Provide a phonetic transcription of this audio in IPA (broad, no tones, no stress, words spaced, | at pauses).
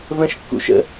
və̃ʃ kːṵʃə̰